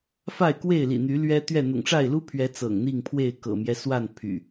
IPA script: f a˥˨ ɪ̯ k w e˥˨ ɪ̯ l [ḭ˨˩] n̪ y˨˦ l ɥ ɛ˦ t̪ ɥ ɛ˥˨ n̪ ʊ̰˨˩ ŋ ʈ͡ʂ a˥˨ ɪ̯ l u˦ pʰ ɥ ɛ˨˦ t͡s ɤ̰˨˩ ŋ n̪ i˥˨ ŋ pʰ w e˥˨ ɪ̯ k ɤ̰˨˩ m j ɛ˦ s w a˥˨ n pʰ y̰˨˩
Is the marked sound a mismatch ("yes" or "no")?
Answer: no